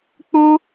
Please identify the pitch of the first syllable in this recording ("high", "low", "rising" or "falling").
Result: high